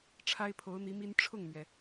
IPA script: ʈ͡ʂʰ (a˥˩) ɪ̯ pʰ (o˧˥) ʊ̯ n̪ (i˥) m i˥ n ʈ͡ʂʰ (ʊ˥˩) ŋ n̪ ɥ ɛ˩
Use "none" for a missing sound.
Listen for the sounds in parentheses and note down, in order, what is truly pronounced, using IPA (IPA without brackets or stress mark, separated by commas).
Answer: a˥, o˧˥, i˧˥, ʊ˥˩